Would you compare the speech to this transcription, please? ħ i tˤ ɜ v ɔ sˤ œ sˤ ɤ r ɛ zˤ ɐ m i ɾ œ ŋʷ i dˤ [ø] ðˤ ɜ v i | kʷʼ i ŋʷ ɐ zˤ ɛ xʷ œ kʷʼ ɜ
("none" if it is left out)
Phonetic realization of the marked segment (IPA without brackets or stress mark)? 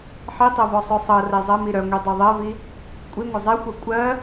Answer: œ